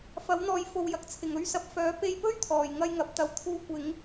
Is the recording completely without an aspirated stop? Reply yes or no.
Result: no